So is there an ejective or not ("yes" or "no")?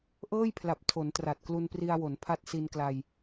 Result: no